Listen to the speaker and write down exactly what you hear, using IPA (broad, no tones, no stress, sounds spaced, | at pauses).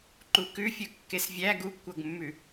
ǃ u k ʉ fʲ ɵ kː e s vʲ æ ɡ u ɡ kʷ ɤ ɡ mː ʉ